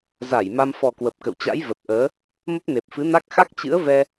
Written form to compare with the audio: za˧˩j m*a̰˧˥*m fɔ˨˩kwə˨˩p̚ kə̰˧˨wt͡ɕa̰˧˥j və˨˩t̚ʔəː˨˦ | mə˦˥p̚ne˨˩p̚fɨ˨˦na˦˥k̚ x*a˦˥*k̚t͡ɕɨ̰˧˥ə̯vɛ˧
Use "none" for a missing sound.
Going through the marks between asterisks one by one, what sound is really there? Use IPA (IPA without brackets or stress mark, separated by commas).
a˧, a˦˥